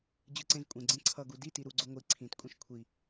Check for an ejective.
present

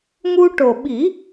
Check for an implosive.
present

